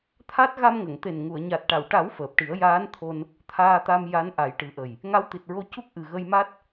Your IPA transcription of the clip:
t̪ʰ a˦˥ t̚ ɣ a˧ m ŋ ə˨˩˨ ŋ t̪ e˨˩ n ŋ u˨˩˨ ə̯ ɲ a˨˩ t̚ ʈ a˨˩˨ w ʈ a˨˩˦ w f əː˨˩ p̚ ʈ i˨˩˦ ə̯ j aː˧˥ n t̪ʰ o˧ n | t̪ʰ aː˧ t̪ a˧ m j a˧˥ n ʔ a˨˩˦ j ʈ ɨ˨˩˦ ʔ ə˨˩ j | ŋ a˧˥ w t̪ i˨˩ t̚ ɹ o˧ c u˦˥ k̚ ʔ ɨ˨˩ ɣ ə˧ j m a˦˥ t̚

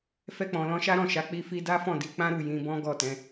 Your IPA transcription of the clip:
f ɛ˧ k͡p ɔ̃˨ l ɔ̃˧ ʃ a˦ ɾ ɔ̃˦˨ ʃ a˨˦ k͡p i˦ f i˦ d a˦ f ɔ̃˦˨ d i˨˦ k͡p ã˦ ɾ u˦˨ j ĩ˧ b ɔ̃˦ ɡ ɔ˦˨ t ɛ̃˨˦

